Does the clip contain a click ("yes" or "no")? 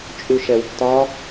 no